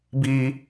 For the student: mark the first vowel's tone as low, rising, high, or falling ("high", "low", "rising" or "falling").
high